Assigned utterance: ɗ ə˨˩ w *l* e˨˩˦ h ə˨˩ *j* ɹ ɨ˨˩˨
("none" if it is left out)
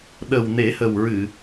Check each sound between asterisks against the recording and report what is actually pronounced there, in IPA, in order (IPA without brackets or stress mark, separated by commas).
n, w